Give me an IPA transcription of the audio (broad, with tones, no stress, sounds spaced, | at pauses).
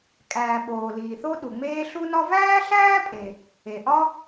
kʼ æː˩ ɓ oː˩ l iː˩ θ o˥ ɗ u˩ ŋ͡m eː˥ ɬ u˥ n ɒ˥ v æː˥ ɬ æː˥ pʼ e˩ | e˩ ʔ ɒ˥